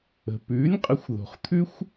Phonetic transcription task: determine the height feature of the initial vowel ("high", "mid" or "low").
mid